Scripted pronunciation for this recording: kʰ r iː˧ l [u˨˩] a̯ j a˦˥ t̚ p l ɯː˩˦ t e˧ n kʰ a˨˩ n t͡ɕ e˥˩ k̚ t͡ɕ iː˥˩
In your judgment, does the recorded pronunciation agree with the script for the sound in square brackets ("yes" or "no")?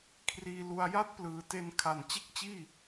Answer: no